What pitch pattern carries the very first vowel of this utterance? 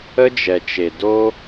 high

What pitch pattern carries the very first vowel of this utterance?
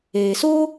low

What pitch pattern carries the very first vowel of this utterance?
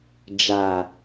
low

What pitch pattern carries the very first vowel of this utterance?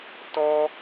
high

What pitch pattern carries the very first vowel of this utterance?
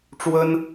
high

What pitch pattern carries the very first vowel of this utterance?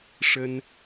high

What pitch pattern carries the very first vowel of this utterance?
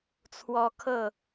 high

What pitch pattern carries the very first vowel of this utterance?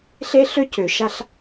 high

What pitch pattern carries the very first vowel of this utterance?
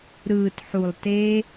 low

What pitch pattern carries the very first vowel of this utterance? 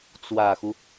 low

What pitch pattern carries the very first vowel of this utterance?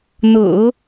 low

